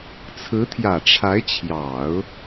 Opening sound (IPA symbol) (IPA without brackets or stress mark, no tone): t͡sʰ